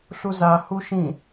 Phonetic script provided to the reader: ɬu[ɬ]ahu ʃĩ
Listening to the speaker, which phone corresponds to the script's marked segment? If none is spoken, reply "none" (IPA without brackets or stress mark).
z